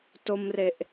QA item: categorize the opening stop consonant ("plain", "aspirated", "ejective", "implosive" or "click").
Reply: plain